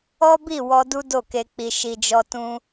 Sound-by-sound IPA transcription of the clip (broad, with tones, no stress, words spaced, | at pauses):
ɔ˦bi˦˨ wɔ˧du˦ do˦˨ke˧k͡pi˧ ʃi˧d͡ʒɔ˦ tũ˦